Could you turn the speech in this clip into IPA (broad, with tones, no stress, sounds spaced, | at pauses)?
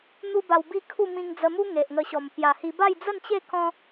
n̪ u˦ b a˧ w b i˥˧ kʰ u˥˧ m ĩ˧ ŋ d͡z ə˧ m u˦ ŋ e˨ ʔ ŋ ə˧ ɕ ɔ˨˩ m p j a˨˩ h i˧ b a˥˧ j d͡z ə˥˧ n t͡ɕ e˥˧ k ɔ̃˦